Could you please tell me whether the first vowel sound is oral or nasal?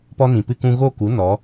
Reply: oral